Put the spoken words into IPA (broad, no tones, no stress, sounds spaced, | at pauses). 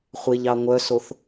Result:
χʷ e ʎ ɑ ŋʷ œ s o θ